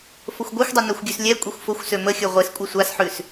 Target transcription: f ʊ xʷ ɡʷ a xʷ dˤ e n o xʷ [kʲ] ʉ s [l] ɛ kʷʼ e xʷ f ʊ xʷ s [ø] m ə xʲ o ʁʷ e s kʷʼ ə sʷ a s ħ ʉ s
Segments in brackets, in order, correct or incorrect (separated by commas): incorrect, incorrect, correct